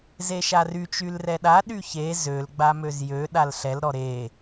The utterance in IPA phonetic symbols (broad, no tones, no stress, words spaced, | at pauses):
zeʃary t͡ʃylrɛɗa ɗyçe zøl ɡ͡bamøzjø ɗalɬɛl ɾɔɾe